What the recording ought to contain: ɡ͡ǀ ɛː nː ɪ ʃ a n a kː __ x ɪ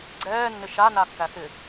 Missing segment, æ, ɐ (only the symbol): æ